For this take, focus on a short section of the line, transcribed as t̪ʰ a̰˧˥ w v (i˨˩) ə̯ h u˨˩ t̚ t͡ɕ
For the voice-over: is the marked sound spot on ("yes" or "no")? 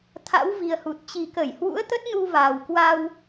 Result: yes